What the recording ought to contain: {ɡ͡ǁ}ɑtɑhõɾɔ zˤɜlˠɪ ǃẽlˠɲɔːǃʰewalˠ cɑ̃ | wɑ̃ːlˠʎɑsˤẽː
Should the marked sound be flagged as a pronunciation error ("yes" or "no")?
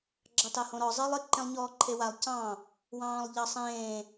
no